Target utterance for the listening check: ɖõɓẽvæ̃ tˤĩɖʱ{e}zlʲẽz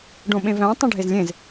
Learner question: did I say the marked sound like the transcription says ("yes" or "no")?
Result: yes